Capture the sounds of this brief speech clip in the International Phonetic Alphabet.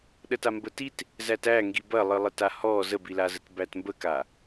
ɗətambətit | zætæ ŋɡibɐlˠɨ lˠətahɔ zəbilazət bætmbəka

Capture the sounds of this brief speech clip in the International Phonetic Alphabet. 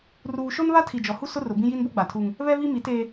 ruː˨ʃo˦n βa˦tʰi˨d͡ʒɔ˨hu˦ sʊ˦rʊ˨bĩ˦ ji˦nbo˦ɡ͡ba˨tʰuː˦ŋ | βɛ˦βi˦mi˨˦teː˦

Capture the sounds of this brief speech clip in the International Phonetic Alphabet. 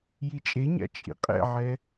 jit͡ʃʼeɲa̰ t͡ʃʼḭqʼɛ̰ʕɛ

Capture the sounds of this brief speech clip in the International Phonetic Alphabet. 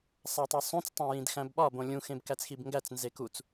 sˤætˤisˤũt͡s tˤæ̃jĩdxæ̃bɓɒ bõlʲũ xẽbkæt͡sxibŋɡæt͡s nzekut͡s

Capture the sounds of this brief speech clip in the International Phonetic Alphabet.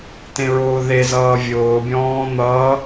tẽɹʊːðezʌː vʲʊːbʲɔ̃ː n̪ʌː

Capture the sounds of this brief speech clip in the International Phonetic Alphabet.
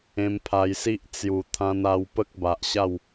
ẽ˧mpʰa˧jsi˦ʔ t͡sju˨˩ t̪ʰã˧na˧w pə˦k̚ba˨ʔɕa˥˧w

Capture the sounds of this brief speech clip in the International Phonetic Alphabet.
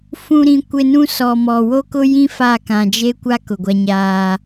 fũ˨ɾĩ˨ kʷɪ˨nũ˦ sɔ˨mɔ˨ wo˦kʊ˦jĩ˦ fa˦˨kã˨ d͡ʒe˦kʷa˦ kʊ˨ɡʷa˦ɲaː˦

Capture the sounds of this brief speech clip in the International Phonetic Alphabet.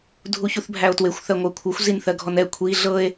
dʱuçuθbʱæo̯twexʷ θɜŋʷɜkʷʰɤxʷ zinθɜɡʱɔnɛ kʷʰi ɮɤe̯

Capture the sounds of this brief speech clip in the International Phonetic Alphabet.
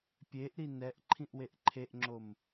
pʲeʔɾi nɛʔ ǃʰĩʔweʔǃʰeʔŋ͡ǁom

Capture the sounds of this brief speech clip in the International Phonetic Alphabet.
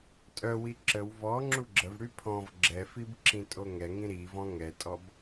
tʼœwi ǁəw vɔ ŋ͡ǁuɡ͡ǁəvɽy pʰɔ̃v ɡ͡ǁɛfib ǁĩtʼoŋɛŋĩ ɾivɔ̃ ŋɛtʼɔb

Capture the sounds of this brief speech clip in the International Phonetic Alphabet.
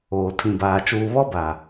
oː˨tʰĩ˨baː˨ t͡ʃuː˨βɔ˦baː˨

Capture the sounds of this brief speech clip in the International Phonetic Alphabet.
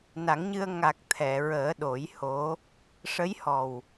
na˨˩˦ŋɲɨ˧ə̯ ŋa˨˩k̚ t̪ʰɛ˨˩˨ɹəː˨˩˦ɗo˨˩˦jho˧˥ | ʂə˧˥jhɔ˨˩w

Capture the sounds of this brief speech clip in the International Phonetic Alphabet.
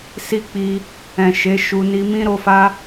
si˦k͡pi˧ | ɛ̃˨ʃe˨˦ ʃu˧ ni˧mĩ˦ɾo˧fa˦

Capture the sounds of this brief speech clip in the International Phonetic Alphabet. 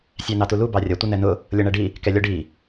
sʲænɑtulu bɑrʲʌ tʷənɛnʊ | lʲʌɳæɖi | kɛlʲɒɖi

